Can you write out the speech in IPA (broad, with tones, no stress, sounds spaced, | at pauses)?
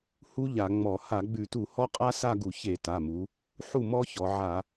h u˦˥ ʎ a˧˩˧ ŋ͡m ɔ˧˩˧ h a˧˩˧ ɡ͡b ʉ˧˩˧ t u˧˩˧ h ɔ˦˥ qʼ a˦˥ s a˥˧ ɡ u˧˩˧ ç e˧˩˧ t a˩˧˩ m u˩˧ | ħ u˥˩ m ɔ˦˥ ç ɔ˩˧ ʕ a˧˩˧